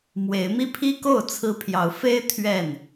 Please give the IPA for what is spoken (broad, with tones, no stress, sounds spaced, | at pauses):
m w e˨˦ ɪ̯ m i˦ pʰ i˦ k o˥˨ ʊ̯ t͡sʰ ɹ̩˦ pʰ j ɑ˨˦ ʊ̯ f e˦ ɪ̯ t̪ʰ ɥ ɛ˥˨ n